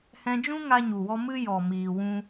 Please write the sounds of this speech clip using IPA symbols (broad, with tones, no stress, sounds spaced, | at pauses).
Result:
h ɛ̃˧ d͡ʒ ũ˦ ŋ a˦ ɲ u˨ w ɔ˦ m ɨ˦ j ɔ˨ m iː˨ w ũ˦